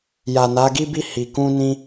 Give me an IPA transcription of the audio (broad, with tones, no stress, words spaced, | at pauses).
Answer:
ja˨ na˨˦ɡi˦bi˦˨ hi˨kũ˧nĩ˧